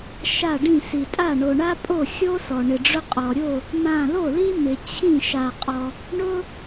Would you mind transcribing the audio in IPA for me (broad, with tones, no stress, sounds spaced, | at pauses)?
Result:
ʃ a˥˩ ɖ ĩ˥˩ s i˩ tʼ a˥˩ ɳ o˩ ɳ a˥ pʼ o˥˩ xʲ o˥ s ɔ˩ ɳ ɪ˩ ɖ͡ʐ ʊ˥ qʼ ɔ˩ ɾʲ o˥˩ | m ã˧˩ l o˥˩ l i˥ m ɪ˩ t͡ɕʰ ĩ˥˩ ʃ a˩ qʼ ɔ˩ | ɳ ʊ˥